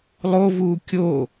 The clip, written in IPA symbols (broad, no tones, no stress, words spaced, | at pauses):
lˠovuː kʲo